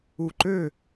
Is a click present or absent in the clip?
present